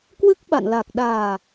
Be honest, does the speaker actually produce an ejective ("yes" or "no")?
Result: no